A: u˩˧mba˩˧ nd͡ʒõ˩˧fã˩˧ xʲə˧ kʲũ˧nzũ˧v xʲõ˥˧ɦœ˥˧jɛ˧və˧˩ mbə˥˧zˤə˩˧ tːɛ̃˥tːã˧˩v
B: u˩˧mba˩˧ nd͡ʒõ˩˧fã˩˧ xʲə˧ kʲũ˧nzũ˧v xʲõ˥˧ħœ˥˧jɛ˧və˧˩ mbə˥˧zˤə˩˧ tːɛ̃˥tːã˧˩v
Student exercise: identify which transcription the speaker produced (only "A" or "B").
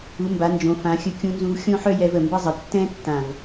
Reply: B